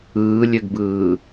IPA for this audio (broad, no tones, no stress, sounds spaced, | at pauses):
ɯː lʲ ø ɡ b ɯː